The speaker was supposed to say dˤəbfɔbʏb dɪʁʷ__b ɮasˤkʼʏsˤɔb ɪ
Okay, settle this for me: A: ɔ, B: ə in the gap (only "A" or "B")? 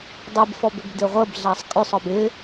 B